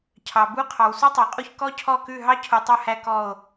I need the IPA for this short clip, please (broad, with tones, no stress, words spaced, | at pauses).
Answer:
cʰɑ˨bu˥ qʰɑ˨wsu˥tˤɑ˨qʼu˥˨ç kɔ˥cʰɔ˥˨kʉ˥˨ ɦɑ˥cʰu˨ tˤu˥˨hæ˥˨ kɔ˥˨o̯